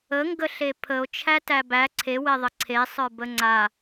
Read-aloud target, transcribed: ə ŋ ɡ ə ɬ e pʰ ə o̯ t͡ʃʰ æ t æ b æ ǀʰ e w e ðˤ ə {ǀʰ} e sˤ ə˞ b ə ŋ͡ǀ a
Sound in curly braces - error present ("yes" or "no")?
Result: no